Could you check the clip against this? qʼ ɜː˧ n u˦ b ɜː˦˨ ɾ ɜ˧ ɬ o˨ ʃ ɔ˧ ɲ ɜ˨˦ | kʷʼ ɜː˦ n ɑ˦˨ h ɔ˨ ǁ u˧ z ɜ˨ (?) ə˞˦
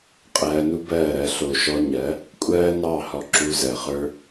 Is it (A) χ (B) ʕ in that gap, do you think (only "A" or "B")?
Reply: A